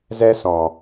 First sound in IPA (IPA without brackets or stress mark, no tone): z